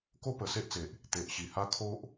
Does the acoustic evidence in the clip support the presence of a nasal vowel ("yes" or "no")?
no